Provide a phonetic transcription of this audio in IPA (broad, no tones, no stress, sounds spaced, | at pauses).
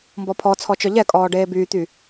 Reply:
m b ɔ pʰ ɔ t͡sʰ ɔ t͡ʃ œ ʎ ɛ kʼ ɔː ɖ eː b yː t̪ y